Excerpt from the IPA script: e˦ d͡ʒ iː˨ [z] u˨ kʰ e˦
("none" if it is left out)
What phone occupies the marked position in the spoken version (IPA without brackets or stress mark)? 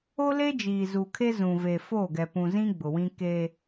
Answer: z